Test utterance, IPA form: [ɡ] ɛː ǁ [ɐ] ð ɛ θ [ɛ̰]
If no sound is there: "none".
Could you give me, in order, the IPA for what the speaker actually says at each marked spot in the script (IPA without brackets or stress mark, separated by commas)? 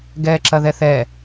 ɡ, ɐ, ɛ